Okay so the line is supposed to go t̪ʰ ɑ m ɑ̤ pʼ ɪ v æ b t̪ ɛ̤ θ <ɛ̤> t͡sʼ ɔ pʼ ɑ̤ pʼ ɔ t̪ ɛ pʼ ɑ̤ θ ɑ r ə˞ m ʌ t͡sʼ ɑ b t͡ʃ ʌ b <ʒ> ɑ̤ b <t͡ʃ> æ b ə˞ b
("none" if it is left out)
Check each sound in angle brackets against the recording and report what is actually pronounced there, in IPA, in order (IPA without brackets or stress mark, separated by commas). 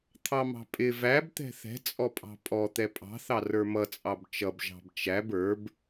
ɛ̤, ʒ, t͡ʃ